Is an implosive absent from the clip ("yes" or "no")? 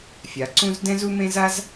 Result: yes